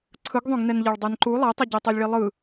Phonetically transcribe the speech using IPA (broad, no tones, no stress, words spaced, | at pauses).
ǀʰɯɡðˤõɡnɛnʎɛɭ dˤɛnǃu lˠɛtˤʌɟe tˤelʲɭilˠɯ